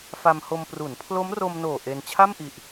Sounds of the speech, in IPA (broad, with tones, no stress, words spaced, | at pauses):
fa˧mho˧m pru˩˦npʰlo˦˥mro˧mnoː˨˩ ʔe˧n t͡ɕʰa˥˩mʔi˨˩ʔ